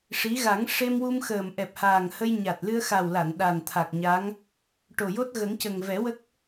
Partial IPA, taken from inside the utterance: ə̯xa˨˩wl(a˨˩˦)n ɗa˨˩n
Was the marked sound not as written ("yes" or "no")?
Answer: yes